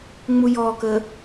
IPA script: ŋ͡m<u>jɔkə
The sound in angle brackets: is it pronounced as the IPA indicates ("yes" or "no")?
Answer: yes